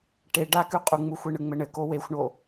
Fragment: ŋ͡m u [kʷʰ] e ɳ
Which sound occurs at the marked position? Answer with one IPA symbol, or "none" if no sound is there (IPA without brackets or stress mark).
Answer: xʷ